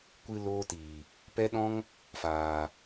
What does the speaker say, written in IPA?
kʷɨ˦loː˦ tiː˨ | pɛ˦ɗɔ̃˦ŋ | faː˨

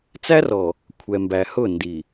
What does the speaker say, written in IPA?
t͡sæ˦rɔ˨ | kʷʰɛ˨mbæ˨ hʊ˦˨ndi˨

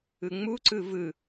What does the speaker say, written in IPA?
ɯŋ͡muǀɯ vɯ

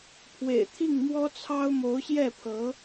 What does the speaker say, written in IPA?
pʰwḛ˨˩ɪ̯t̪ʰi˥˩ŋ mwɔ˥t͡sʰɑ˥ʊ̯ mo˧˥ʊ̯ɕjɛ˥˩pʰɤ˧˥

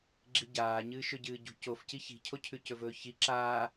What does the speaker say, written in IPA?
ɡ͡ǁiɟaː ɲɨːʃɵɟɨːɟṳ cofci çi̤cʰo cʰʉcɵvɵːçi ǁaː

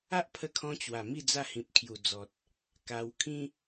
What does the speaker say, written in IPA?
a˦ʔpʰə˧kʰɔ̃˧ t͡ɕwa˨˩ mi˥˧ d͡za˥˧hĩ˨p̚kʰju˨˩ d͡zɔ˨t̚ | ka˧w kʰĩ˦

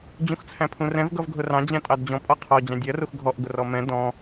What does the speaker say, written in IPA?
d͡ʑũxt͡sʰæ̃pʰũrɛ̃v ɡʌvɡʱʊrɑ̃ d͡ʑæ̃tʼɑdd͡ʑɔ̃ pʼɒqʰɔ d͡ʑɑ̃dʲɜ ruxɡʱɔʔ ɡʊrɔmɛ̃ dɔ̃

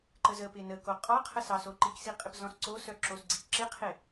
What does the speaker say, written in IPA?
ǃəzəpɪ nə koqʼɔqʰə sɑsoǃiksi qʼɪpzɔ̃sǀosœ ǁosɡ͡ǀikǁɪqʰɪ

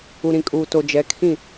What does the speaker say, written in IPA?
u˨ɾĩ˨kʼuː˨to˨ d͡ʒɛ˨˦kʰĩ˦˨

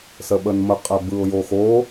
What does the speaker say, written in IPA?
səɓənmə qʼɛbɯʊ̯joxo

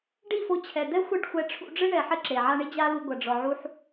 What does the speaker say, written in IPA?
ɖi˦˨fo˧t͡ɕʰɛ˨d̪ɛ˦ xʷɘ˦˨ɖxʷɛ˧ ʈ͡ʂʰṵ˧ɖ͡ʐɨ˦ ɳɛ˨ ħɘ˦ǁe˨ʕa˦ ɳi˦d͡ʑa˦lu˧ ɡʷɐ˨ɖ͡ʐɔ˨ʕu˧ħ

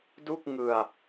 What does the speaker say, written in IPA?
du˥˩k̚ŋɯ˧a̯

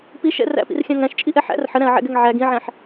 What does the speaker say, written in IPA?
piʃɛ̰ ræ̰pḭrxʲæ̃ ŋæ̃ʃt͡ʃʼiʔɛ ħæ̰r ħəɾæ̃ɐ̯ʕɛ̰ɡɛŋ ʕæɡ ĩʕæ̃ħ

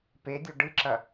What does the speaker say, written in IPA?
pedʲo ɖɨǁɐ

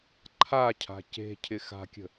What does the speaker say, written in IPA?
ǃʰacʰa̤ ce̤ cʰɪxa̤kʲə̤

